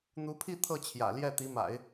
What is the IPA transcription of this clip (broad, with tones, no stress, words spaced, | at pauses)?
n̪u˧˥pʰi˥˧ t̪ʰɤ˥˩t͡ɕʰjä̰˨˩ljɛ˥˩ t̪i˧˥ma̰˨˩˦ɪ̯